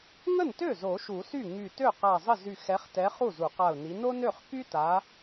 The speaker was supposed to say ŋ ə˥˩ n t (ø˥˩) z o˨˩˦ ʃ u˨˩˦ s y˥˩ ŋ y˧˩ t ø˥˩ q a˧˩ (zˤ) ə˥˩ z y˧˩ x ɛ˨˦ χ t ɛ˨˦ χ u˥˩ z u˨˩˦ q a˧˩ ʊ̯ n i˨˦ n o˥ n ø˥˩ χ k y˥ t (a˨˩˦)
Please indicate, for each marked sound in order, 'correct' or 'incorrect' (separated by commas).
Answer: correct, correct, incorrect